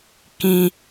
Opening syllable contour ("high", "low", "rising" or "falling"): low